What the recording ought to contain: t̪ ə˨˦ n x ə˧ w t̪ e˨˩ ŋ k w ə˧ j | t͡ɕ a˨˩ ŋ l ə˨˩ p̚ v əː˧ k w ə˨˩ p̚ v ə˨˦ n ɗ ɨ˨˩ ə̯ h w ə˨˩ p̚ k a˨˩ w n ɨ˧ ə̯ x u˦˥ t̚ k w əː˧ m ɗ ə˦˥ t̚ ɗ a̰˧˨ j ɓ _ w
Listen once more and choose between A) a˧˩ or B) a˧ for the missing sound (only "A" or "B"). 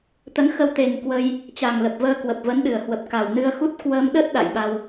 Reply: B